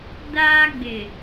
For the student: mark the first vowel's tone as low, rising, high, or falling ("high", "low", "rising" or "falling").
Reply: high